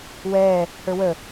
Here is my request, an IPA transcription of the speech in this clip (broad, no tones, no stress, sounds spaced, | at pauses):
w ɛː | h ə˞ w ə